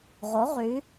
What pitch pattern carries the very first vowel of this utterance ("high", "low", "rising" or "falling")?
rising